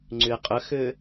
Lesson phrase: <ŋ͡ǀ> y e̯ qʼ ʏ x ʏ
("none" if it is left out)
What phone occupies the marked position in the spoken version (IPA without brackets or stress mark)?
ŋ͡ǀ